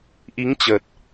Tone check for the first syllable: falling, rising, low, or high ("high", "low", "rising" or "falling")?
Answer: rising